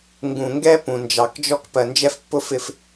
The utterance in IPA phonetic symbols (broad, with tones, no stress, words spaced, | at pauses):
ŋɡũ˨ŋɡɛ˦ pũ˨nd͡ʒɑ˨kd͡ʒɔ˦k pɜ˨nd͡ʒɛ˦fpːʊ˦fɪ˦f